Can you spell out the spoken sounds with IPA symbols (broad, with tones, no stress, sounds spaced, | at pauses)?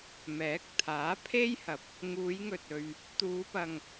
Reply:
m ɛː˨˥ k̚ t̪ʰ aː˨˥ pʰ e˥ j h ɐ˨ p̚ | ŋ uː˨˧ j ŋ ɵ˨ t̚ ɵ˨ ɥ | t̪ uː˨˧ p ɐ˨ ŋ